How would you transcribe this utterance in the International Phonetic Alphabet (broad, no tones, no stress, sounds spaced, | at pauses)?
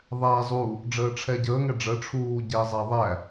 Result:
ðˤ æ zˤ u | ɖ͡ʐ əː ʈ͡ʂʰ ɛ ɟ əː ŋ ɛ ɖ͡ʐ ə ʈ͡ʂʰ uː ɟ ɛ zˤ æ ðˤ æ